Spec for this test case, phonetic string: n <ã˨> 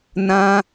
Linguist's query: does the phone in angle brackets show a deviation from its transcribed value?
yes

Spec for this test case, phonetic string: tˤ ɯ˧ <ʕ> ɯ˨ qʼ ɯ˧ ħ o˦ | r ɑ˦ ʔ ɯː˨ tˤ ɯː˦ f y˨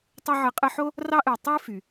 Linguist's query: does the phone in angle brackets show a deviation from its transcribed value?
no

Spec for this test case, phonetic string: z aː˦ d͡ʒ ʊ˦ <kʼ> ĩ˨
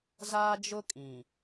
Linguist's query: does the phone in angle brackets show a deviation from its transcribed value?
no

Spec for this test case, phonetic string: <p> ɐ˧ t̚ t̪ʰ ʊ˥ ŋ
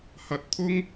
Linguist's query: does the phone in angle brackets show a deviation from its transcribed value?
yes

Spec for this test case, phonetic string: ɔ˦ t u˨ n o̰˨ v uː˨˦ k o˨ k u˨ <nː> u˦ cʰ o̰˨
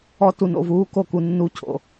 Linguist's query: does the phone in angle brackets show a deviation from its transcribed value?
no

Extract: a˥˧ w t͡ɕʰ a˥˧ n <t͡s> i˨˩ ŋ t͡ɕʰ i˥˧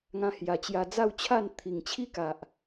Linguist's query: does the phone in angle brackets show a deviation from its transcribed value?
yes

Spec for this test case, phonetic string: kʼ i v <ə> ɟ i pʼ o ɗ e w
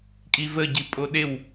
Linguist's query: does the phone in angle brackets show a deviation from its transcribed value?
no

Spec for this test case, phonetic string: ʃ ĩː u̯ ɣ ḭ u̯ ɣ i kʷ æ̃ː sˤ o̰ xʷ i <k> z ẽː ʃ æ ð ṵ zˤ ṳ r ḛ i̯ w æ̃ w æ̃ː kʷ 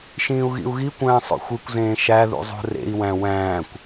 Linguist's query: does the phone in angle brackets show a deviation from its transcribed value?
yes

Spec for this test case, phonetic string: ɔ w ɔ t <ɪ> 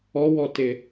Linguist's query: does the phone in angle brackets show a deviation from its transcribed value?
no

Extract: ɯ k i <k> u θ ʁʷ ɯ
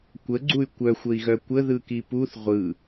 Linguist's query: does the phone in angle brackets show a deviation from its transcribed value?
yes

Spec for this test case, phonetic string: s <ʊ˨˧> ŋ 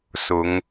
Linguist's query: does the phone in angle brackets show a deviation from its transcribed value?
no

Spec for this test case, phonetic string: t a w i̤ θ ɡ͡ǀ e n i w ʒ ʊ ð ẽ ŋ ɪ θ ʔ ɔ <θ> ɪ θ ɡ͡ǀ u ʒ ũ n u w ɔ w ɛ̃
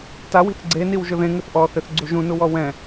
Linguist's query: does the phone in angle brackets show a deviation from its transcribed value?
no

